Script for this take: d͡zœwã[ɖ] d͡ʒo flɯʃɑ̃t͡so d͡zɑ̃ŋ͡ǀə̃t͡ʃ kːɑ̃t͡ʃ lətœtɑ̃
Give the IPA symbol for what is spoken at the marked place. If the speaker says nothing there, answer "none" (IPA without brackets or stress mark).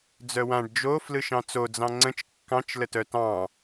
ɖ